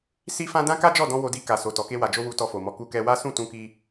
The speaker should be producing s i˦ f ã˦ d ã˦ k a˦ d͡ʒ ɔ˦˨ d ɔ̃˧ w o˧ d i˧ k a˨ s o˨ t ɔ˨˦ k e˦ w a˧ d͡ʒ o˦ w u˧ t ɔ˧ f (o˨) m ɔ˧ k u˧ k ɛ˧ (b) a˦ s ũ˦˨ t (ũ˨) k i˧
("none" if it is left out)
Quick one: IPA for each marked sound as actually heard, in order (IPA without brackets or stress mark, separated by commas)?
o˨, w, ũ˧